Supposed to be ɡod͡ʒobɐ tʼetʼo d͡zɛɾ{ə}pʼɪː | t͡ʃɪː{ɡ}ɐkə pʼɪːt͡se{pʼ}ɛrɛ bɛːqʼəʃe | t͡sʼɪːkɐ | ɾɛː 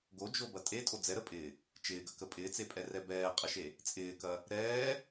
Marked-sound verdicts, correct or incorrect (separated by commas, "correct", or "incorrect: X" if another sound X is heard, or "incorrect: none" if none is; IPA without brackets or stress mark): correct, correct, correct